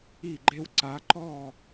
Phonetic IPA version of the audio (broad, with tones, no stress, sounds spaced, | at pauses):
i˦˨ ɡ͡ǃ e˦ w ǀ a˨˦ ǃ ɔ˦˨